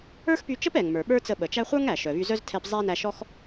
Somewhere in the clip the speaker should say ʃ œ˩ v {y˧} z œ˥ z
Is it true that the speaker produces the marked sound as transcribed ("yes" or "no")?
yes